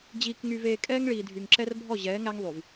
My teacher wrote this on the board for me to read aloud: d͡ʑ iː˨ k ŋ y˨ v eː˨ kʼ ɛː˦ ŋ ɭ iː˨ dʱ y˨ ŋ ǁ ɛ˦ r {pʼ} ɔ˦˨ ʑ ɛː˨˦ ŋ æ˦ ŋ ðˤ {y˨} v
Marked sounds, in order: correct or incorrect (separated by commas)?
incorrect, correct